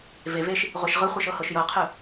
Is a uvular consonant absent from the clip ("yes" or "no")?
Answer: no